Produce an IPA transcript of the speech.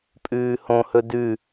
pʼ ʉː h õ h ɵ d ʉ

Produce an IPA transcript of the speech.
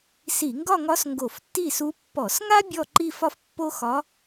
s i˧˩˧ ŋ ɡ ɒ˥˧ ŋ ɒ˧˥ s ŋ ɡ o˧˩˧ f tː i˥˩ s u˧˥ pː ɔ˧˩˧ s ŋ a˥ bʲ ɔ˥˧ ǃ i˥˧ f ɒ˥ f pː o˥ x ɒ˧˥

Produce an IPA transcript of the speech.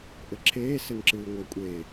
ʔ ɘ ǁʰ eː s ɘ n ǁ ɨː ŋʷ a kʷʼ e

